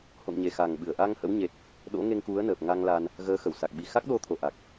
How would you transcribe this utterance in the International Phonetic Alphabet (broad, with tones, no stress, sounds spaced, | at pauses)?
h o̰˧˨ ŋ ɲ e˨˩ x a˨˩ ŋ ɓ ɨ˧˩ ə̯ ʔ a˧ ŋ h ə̰˧˥ w ɲ e˨˩ t̚ | ɗ o̰˧˥ ŋ e˧ ŋ k u˨˦ ə̯ n əː˨˩ p̚ ŋ a˧ ŋ l a˧ n | ɣ əː˨˦ x ə˧˩ w s a˨˩ k̚ ɓ i˨˩ x a˦˥ k̚ ɗ o˧ t̪ʰ o˨˩ ʔ a˨˩ k̚